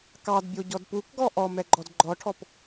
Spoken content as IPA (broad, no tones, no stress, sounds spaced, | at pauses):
k ɑ d bʲ o ɟ ɔ d p u k ɡ ɔ ʔ ɔ m ɛ ɡ͡ǃ ɔ d ɡ͡ǃ ɔ ʈʰ ɔ p